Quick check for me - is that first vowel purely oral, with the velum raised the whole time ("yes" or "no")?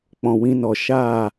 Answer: no